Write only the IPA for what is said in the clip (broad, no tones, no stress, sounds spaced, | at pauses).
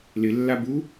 l ɪ lː a b u